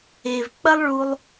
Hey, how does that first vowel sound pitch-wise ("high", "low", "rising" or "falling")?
low